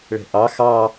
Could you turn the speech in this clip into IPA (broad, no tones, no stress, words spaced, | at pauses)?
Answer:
ɭɛ̤ʔɑ xɑ